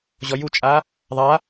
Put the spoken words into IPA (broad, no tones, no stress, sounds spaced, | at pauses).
ʑ ɔ j u t͡ʃʼ a | ðˤ a